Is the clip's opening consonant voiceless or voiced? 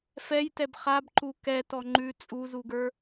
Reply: voiceless